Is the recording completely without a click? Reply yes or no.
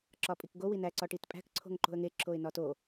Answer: no